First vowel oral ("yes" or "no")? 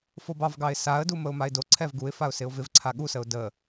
yes